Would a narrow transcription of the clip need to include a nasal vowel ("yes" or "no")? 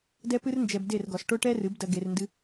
no